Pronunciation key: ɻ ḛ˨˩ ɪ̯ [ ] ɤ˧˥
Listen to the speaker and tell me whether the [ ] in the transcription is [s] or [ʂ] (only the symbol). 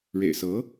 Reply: s